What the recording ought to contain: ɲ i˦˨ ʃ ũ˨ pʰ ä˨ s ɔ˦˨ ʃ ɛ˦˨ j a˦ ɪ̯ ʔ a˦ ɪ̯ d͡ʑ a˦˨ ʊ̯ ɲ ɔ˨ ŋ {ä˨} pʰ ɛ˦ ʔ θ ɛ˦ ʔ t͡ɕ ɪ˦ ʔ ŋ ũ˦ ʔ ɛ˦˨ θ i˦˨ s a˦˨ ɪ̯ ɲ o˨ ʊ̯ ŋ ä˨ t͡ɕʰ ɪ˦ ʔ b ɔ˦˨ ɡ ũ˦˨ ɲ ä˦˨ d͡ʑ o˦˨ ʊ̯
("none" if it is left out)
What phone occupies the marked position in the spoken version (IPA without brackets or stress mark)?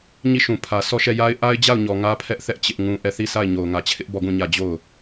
ä˦